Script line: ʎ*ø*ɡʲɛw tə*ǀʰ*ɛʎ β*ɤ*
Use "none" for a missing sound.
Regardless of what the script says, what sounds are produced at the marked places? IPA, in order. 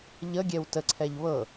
ə, ǀʰ, ɤ

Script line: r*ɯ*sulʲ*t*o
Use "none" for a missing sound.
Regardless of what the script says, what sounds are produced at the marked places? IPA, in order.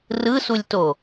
ɯ, t

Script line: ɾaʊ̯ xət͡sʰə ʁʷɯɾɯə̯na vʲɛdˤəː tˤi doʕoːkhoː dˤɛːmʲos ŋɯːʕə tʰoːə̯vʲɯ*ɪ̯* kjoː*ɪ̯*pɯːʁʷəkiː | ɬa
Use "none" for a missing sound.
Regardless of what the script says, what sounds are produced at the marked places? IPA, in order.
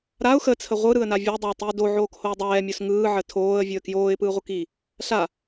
ə̯, ɪ̯

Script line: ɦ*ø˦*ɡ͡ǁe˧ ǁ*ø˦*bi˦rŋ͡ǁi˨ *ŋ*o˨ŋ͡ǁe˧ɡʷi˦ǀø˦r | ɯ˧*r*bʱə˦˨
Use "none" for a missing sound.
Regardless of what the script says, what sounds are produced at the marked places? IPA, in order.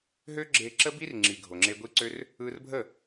ø˦, ə˦, ɡʱ, r

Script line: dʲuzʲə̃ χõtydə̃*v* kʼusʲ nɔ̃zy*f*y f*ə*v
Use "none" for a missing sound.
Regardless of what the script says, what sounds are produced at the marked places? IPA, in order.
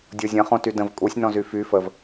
v, f, ə

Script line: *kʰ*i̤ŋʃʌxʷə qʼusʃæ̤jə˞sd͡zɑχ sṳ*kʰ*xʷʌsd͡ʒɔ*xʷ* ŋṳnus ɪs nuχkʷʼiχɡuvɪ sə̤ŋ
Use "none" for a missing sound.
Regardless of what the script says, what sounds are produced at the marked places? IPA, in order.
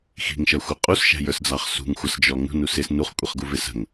x, ŋ, none

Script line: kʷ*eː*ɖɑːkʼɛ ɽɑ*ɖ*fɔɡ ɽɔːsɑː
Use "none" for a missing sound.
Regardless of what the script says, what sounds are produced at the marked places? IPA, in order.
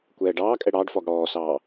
ɛː, ɖ

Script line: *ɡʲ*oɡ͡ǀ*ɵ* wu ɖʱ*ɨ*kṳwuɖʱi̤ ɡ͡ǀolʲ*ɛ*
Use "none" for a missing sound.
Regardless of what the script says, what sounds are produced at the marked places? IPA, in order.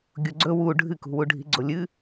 ɡʲ, ɵ, ɨ, ɨ

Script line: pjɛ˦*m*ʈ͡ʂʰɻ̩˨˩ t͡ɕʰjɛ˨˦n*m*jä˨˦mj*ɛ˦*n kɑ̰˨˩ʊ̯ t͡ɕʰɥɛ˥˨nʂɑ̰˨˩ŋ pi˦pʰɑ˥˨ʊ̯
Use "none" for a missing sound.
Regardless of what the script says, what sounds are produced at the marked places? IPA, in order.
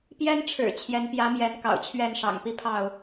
n, p, ɛ˨˦

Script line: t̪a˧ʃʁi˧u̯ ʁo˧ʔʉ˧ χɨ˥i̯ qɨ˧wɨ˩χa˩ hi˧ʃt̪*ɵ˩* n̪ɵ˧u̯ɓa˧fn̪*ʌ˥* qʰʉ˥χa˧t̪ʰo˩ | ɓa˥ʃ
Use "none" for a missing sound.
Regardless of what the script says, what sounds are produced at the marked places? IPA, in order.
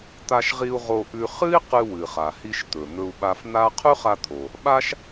ɵ˩, a˥

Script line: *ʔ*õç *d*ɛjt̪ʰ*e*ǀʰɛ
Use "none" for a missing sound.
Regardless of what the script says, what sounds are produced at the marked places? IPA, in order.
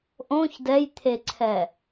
ʔ, d, e

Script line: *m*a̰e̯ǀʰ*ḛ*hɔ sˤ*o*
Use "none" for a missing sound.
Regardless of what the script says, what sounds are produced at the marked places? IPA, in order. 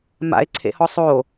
m, ḛ, o

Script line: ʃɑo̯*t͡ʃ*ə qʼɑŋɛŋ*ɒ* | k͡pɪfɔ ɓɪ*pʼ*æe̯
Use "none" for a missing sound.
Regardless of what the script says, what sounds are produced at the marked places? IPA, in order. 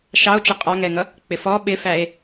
t͡ʃ, ʌ, f

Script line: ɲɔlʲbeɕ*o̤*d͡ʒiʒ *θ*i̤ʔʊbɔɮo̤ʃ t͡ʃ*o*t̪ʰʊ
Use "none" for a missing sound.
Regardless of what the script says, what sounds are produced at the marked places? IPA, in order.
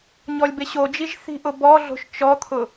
o, θ, ɔ

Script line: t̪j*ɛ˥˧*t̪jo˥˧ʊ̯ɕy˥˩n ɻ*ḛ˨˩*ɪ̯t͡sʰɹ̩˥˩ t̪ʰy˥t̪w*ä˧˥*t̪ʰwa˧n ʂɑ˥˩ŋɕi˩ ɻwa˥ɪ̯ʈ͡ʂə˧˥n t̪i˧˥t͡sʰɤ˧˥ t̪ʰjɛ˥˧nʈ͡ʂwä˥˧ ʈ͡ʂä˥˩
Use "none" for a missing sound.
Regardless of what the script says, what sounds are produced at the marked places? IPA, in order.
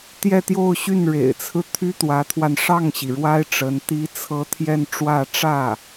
ɛ˥˧, ḛ˨˩, ä˧˥

